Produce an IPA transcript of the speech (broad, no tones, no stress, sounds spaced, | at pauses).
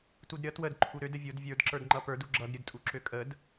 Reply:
t u d ɾʲ ʌ t w ə d ǃʰ u ɾ ø d ə vʲ o d vʲ ə˞ d ǁ ə˞ d ŋ͡ǃ ʌ p ə˞ d u ɡ͡ǁ ʌ d ɾʲ ɯ d tʼ u ǁ ø kʼ ə d